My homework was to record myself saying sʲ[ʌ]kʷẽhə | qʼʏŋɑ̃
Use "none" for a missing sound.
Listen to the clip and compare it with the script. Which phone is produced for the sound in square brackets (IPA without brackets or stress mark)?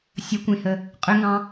ʌ